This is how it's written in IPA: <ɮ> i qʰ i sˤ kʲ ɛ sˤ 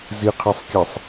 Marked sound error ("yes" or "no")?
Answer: yes